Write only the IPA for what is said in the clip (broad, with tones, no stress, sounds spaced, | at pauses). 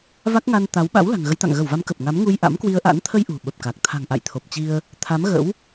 v a˦˥ k̚ ŋ a˧ n t̪ a˨˦ w ɓ a̰˧˥ w l a̤˨˩ ŋ ɣ ə˨˦ j t̪ a̰˧˨ ŋ ɣ ə˧˩ w v a˨˦ m k ə˨˩ p̚ ŋ a˨˦ m ŋ u˧ j ʔ a̰˧˥ m k w i˧ ə̯ ʔ a̰˧˥ n t̪ʰ ə˧ j ʔ ṳ˨˩ ɓ ə˨˩ p̚ k a˨˩ k̚ t̪ʰ a̤˨˩ ŋ ʔ a̰˧˨ j t̪ʰ o˨˩ p̚ t͡ɕ i˧ ə̯ | t̪ʰ a˨˦ m ɣ ə̰˧˥ w